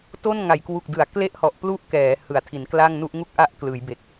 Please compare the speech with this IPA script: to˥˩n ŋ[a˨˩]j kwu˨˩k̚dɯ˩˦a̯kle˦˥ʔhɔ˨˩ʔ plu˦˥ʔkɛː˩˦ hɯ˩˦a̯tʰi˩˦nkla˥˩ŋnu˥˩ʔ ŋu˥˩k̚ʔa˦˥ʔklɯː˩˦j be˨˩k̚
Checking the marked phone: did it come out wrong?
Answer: yes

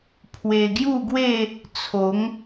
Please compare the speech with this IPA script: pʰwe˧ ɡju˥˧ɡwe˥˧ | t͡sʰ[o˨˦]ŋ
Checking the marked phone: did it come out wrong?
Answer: no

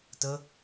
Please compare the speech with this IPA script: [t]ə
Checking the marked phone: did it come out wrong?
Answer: no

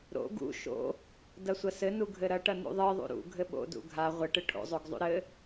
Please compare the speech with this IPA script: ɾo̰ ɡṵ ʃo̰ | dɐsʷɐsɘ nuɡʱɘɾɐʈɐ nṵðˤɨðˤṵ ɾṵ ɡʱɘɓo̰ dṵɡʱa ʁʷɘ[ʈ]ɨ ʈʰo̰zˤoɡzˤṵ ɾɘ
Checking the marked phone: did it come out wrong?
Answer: no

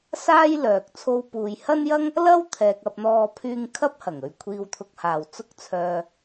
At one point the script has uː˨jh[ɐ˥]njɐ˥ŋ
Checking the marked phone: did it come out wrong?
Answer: no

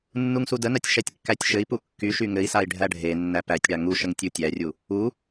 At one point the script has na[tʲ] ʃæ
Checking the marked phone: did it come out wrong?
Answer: no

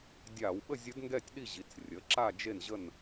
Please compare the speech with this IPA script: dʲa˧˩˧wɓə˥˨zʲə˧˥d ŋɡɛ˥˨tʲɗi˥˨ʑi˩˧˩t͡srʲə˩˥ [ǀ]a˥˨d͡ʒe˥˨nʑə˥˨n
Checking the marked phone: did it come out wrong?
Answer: yes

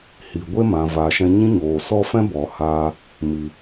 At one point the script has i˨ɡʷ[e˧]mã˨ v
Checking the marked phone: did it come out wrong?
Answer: yes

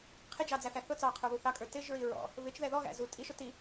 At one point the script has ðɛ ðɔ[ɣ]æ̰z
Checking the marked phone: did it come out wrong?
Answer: no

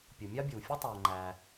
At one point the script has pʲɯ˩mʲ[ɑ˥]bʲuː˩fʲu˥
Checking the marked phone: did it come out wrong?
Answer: no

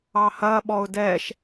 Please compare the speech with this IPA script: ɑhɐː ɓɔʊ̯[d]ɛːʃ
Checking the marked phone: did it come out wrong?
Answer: no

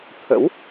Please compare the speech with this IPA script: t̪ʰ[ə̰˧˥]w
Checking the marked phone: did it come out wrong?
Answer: no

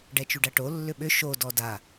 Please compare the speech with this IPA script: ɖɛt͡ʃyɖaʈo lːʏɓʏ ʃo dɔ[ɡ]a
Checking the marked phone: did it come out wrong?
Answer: yes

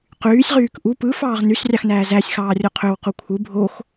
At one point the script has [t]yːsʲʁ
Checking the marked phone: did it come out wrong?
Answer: yes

